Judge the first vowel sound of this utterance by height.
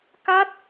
low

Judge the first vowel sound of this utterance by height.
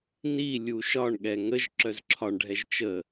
high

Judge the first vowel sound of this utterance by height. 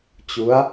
high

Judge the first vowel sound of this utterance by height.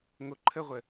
mid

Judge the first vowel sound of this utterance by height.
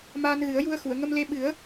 low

